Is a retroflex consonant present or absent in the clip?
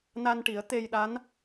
present